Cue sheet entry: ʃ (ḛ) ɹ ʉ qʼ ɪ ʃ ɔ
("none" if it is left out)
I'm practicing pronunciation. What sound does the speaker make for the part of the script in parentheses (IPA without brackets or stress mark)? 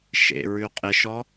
ḛ